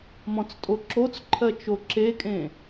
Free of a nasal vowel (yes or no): no